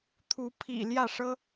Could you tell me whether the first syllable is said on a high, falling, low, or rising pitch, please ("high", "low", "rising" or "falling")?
rising